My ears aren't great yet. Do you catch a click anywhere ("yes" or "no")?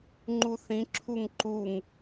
yes